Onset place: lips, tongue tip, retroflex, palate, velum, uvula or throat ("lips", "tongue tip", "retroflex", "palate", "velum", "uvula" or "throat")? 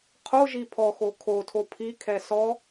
uvula